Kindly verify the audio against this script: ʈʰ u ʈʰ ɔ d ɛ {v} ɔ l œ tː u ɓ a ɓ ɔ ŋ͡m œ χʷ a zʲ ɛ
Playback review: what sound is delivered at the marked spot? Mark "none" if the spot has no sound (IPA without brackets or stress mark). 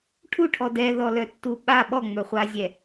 ð